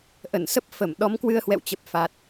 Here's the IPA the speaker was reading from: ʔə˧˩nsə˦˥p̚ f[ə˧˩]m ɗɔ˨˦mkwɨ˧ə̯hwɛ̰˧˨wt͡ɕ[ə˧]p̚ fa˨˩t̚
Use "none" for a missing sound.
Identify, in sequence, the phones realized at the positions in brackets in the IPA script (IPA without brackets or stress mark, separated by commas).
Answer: ə˧˩, ə˨˩